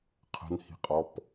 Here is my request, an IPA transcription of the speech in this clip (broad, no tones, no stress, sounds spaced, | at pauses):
qʰ ə̤ n h i̤ qʼ ɔ p